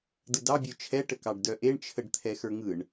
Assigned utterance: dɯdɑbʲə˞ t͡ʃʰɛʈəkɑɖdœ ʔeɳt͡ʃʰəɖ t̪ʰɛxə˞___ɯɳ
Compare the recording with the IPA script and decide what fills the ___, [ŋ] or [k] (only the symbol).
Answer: ŋ